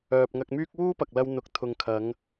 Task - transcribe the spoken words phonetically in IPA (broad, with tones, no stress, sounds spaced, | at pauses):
œː˨ p̚ ŋ ɐ˧ k̚ m yː˥ k̚ w uː˥ p ɐ˨ k̚ l ɐ˧ w n̪ ʊ˨ k̚ t̪ʰ ʊ˨ ŋ kʰ ɐ˨˧ ŋ